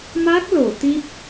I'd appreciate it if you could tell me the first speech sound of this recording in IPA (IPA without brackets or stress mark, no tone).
m